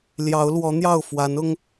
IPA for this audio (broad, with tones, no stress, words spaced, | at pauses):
ljɑ˨˦ʊ̯lwɔ˨˦n̪jɑ˥˨ʊ̯ fwa˨˦nʊ˦ŋ